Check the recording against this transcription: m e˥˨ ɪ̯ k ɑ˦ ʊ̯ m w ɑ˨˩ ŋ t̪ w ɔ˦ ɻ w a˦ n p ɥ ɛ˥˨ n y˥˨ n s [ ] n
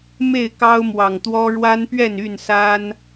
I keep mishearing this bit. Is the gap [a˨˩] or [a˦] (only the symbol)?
a˦